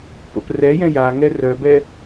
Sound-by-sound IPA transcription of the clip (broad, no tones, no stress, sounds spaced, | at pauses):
p o̰ p r ɛ j ɛ̃ j a ŋ ɛ r œ b ɛ